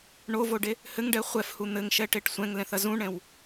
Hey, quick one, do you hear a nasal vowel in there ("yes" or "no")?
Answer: yes